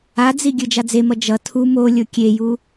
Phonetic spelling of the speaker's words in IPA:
a d͡z i ɡʲ ɯ d͡ʒ a d͡z e m ʌ d͡ʒ ʌ tʰ u m o lʲ o kʲ e j u

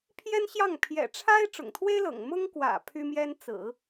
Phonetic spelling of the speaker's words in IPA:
pʰ j ɛ˥ n ɕ j ɑ˥˩ ŋ pʰ j ɛ̰˨˩ ʈ͡ʂʰ a˥ ɪ̯ ʈ͡ʂ ʊ̰˨˩ ŋ t̪ʰ w e˥ ɪ̯ l ɤ̰˨˩ ŋ m ʊ˥ ŋ k w ä̰˨˩ pʰ y˥ m j ɛ˥ n t͡s ɹ̩˨˩˦

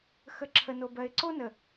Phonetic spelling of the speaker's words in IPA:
x ə˨ ǁʰ ə˨ n o˨ b ɜ˨ ɪ̯ ǀ o˦ n ə˨

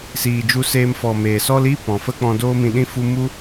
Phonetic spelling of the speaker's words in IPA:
s iː˨ d͡ʒ u˧ s eː˧ m f ɔ˨ m eː˨ s ɔ˧ l i˦˨ p ɔ̃˨ f ə˦ k͡p ɔ̃˧ d oː˦ m ĩ˧ ɗ ĩ˦ f u˦ m u˦

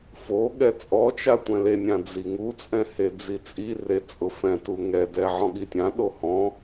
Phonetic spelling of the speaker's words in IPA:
f o ɠ ɛ t͡sʼ ɔ t͡ʃ a tʷ ɛ̃ l e nʲ ã d͡z i ŋ u t͡sʼ ɛ̃ h e d͡z i t͡sʼ i r e t͡sʼ ʊ f ɛ̃ t u ŋ ɛ d ɛ ʕ ɔ̃ ɠ i tʲ ã ɗ o h ɔ̃

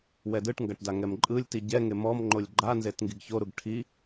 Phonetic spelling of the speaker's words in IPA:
w ɛ d ɯ ʈ ŋ ɡ a ʈ d a ŋ ɛ m ǃʼ ɯ lʲ t i ɟ ɛ ŋ e m ɔ m ŋ͡ǃ o lʲ ɡ͡ǃ a n z e t ŋ ɡ i ɡ ç o ɾ u ɡ ʈʰ i

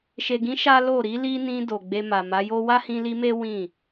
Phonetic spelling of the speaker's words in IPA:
ʃ e˨ ɡ ĩ˨˦ ʃ a˦ l o˦˨ ɾ i˨˦ l i˦ n ĩ˧ d o˨ ɡ͡b e˧ m a˨ m a˨˦ j o˦ w a˦ h ĩ˧ l i˧ m e˦ w ĩ˦˨

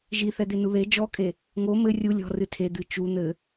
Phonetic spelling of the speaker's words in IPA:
ʒ i θ ɛ d̪ e n u ð e d͡ʒ ɔ kʼ e | ŋ o m ɘ rʲ u lʲ ɔ̤ r ɨ tʰ e d̪ ɨ t͡ʃ u n̪ ɘ

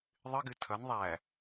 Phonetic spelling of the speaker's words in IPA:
ðˤ ɨ ɡ ɨ tʰ ʌ n ðˤ æ

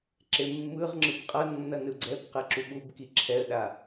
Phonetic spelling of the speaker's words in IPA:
ǁ e mː ɯ ʁ ŋ͡ǁ ɯ b qʼ ʌ nː ʌ n ɯ ɡ͡ǀ ɛ b q ɛ ǁ u ɓ u b k i ǁʰ ɛ ə̯ ɗ a

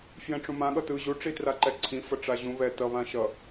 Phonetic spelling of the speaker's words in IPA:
f j ɛ̃ ʈ͡ʂ ũ m ã ɠ ʌ t ɯ ʑ u ʈ͡ʂ i t r a ǃ ɛ ǀʰ ĩ f ʌ ʈ͡ʂ a ʑ ũ β ɛ t ʌ β ã ʃ ʌ

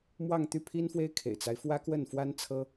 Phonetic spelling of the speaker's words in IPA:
m w ɑ˥˧ ŋ t̪ y˥˩ pʰ i˥ n f w e˥ ɪ̯ kʰ ḛ˨˩ ɪ̯ t͡s a˦ ɪ̯ f w ä˥ k w ə˥˩ n f w a˥ n t͡sʰ ɤ˥

